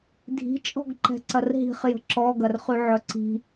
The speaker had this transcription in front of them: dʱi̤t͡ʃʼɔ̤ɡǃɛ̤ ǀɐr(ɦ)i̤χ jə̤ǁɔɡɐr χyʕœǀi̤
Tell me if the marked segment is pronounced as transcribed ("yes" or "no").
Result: yes